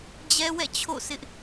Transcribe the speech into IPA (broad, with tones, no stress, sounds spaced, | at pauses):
d͡ʑ ɛ˦ w ɛ̰˦˨ t͡ɕʰ o̰˦˨ s ɪ˦ ʔ